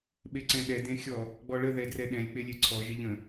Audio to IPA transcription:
ɓ e ǀ ɛ̃ ɗ ɛ d ẽ xʲ ɔ | ɡ͡b ɔ ɭ ə ð ɛ d r ɛ ɗ ɛ̃ lʲ k͡p e lʲ e ǀʰ ɔ ʒ ɪ ʎ ə̃

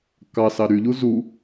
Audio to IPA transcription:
k ɑ s ɑ ɾ y ʎ u z u

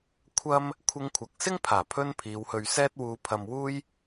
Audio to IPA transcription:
kʷʰ ɐ˥ m | kʷʰ ɪ˧ ŋ kʷʰ ɐ˨ k̚ s ɪ˥ ŋ pʰ aː˨˩ pʰ ɵ˥ n pʰ iː˨˧ w h ɵ˧ ɥ s ɛː˥ t̚ w uː˧ pʰ ɐ˧ m w uː˥ j

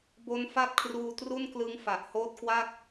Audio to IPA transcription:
b o˦˥ n f a˥˩ t̚ kʰ r uː˧ t r u˥˩ n k l ɯ˦˥ ŋ f a˨˩ ʔ h oː˦˥ t̚ k w a˥˩ k̚

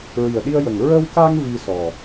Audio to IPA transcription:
ɹ i˨˩ ə̯ ɗ i˧ ə̯ j ə˨˩ ŋ ɹ ə˧ w k a˧ ŋ v i˧ s ɔ˨˩

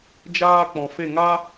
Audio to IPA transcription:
d͡ʒ aː˧ k͡p ɔ̃˨ f e˦˨ ŋ a˦

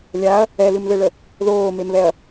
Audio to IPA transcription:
lʲ a ɐ̯ | ɛ l ɨ m ð ɘ ɭ ə | ð oː m e m β ɛ ɐ̯

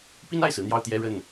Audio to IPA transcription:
p i˥ n a˥˩ ɪ̯ s ɹ̩˧˥ n̪ j ɑ˥˧ ʊ̯ t̪ j ɛ˥˧ ɻ ə˥˩ n

